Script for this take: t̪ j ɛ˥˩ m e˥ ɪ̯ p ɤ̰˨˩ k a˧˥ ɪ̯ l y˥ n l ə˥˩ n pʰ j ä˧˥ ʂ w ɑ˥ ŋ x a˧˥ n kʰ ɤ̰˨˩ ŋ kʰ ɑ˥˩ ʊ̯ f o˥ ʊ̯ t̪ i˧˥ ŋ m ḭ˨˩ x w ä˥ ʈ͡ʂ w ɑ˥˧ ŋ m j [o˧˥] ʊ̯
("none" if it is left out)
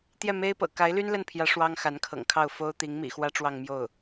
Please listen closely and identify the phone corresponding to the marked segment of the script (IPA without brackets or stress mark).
o˥˩